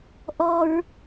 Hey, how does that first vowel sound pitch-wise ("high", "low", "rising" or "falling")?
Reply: high